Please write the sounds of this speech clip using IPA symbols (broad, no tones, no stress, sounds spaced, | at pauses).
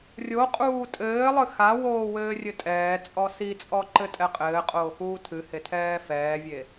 rʲ o qʼ uː tʼ ɘː lˠ ɨ x a w oː w ɘː rʲ ɘ tʼ ɛː t͡sʼ ɔ s i t͡sʼ ɔ ǃ ɘ tʼ ɛ qʼ ɘː qʼ oː x uː tʰ ɨ h e tʰ ɛː f ɛː vʲ e